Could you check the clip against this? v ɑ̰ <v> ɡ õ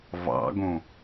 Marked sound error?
yes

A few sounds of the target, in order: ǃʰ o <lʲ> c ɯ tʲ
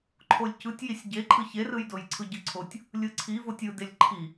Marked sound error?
no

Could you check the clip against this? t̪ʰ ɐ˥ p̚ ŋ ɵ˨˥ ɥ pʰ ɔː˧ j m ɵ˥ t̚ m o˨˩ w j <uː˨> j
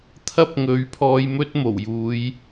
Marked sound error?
yes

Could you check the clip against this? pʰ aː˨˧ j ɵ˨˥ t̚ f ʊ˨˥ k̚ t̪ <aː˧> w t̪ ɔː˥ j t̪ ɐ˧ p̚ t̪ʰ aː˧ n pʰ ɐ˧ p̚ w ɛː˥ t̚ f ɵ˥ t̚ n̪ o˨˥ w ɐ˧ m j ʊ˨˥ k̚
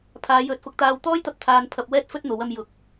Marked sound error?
no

